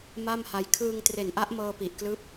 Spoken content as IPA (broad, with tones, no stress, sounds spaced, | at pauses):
m a˥˩ m h a˧ j kʰ ɯː˧ ŋ t r e˨˩ n ʔ a˦˥ ʔ m ɤː˧ p i˨˩ ʔ k l ɯː˦˥ p̚